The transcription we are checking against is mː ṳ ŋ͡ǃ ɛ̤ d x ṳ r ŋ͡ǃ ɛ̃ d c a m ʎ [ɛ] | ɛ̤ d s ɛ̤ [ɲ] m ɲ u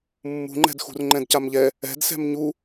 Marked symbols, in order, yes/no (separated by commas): yes, no